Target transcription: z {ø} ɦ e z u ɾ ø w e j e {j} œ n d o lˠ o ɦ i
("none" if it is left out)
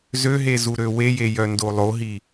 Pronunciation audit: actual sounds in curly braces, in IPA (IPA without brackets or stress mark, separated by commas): ø, j